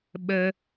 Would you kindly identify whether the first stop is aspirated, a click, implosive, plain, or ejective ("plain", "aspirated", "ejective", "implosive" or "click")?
implosive